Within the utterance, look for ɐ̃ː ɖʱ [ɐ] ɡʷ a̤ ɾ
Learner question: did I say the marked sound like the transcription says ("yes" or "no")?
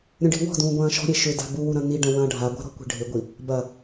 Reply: no